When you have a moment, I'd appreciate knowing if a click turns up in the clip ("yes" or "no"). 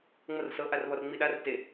no